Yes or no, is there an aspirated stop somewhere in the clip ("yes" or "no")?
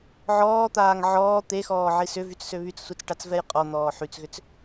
no